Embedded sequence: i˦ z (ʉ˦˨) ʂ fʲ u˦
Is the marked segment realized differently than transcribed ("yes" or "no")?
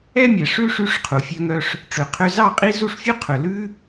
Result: yes